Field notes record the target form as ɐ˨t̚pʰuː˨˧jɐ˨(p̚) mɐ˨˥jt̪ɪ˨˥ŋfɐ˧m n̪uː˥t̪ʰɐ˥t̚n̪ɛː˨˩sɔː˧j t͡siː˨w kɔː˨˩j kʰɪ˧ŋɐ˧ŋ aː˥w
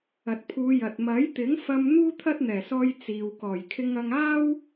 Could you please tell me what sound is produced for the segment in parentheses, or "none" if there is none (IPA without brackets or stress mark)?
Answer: t̚